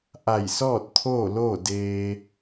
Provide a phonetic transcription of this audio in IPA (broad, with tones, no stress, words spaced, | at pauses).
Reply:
ʔa˧˩jsɔː˥˨t̚ t̪ʰoː˥˨loː˥˨ deː˧